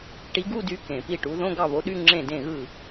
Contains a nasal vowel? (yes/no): yes